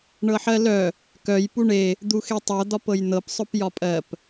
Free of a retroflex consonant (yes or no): no